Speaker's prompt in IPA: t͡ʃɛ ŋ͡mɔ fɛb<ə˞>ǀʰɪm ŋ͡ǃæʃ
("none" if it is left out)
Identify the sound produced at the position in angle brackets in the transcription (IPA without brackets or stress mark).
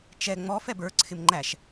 ə˞